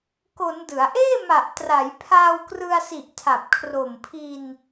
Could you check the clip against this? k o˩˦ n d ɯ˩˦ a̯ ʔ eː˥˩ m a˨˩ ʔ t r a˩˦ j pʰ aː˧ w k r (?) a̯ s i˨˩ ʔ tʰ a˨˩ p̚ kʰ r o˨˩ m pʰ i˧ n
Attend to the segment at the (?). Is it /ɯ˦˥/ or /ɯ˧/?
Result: ɯ˧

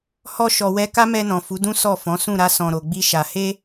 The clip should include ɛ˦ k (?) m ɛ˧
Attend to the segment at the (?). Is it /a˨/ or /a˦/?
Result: a˦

